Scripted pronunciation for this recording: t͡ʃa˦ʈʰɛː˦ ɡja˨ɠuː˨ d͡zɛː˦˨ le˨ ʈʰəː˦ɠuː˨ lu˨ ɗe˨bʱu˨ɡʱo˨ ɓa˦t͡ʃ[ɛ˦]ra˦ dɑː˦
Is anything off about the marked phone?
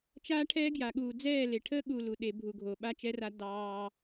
no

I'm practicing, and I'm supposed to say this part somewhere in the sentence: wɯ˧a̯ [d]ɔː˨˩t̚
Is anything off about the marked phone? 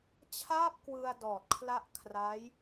no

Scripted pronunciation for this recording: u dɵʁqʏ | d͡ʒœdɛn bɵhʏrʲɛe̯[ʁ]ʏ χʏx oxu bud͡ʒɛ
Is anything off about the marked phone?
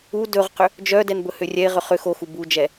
no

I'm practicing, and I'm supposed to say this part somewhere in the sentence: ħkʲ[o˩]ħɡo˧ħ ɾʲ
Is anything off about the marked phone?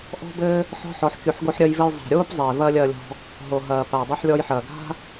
yes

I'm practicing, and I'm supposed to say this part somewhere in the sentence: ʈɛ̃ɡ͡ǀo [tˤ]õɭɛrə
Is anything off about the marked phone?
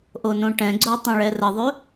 no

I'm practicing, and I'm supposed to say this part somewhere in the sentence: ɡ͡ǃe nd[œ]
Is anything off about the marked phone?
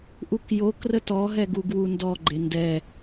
yes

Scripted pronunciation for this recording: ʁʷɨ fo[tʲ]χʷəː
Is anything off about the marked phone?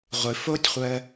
no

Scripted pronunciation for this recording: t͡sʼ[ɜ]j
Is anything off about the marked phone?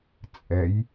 yes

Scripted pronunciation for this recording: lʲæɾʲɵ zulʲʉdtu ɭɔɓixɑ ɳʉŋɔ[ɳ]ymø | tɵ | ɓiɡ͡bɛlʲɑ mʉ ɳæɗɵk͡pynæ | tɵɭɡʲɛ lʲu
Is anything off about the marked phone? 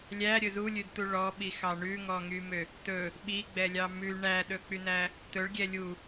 yes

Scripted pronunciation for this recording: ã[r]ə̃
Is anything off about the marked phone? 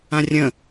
yes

